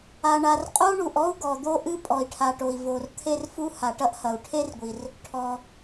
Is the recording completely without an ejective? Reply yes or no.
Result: no